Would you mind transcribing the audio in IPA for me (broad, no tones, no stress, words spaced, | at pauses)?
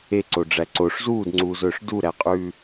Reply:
eǀoɖ͡ʐæ ǀoʂ zuːdŋ͡ǀuːzɵːʂ duɾæqʼʉː